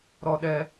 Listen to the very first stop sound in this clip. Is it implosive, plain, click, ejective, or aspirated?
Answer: implosive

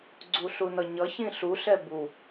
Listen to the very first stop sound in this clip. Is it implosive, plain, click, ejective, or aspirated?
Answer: click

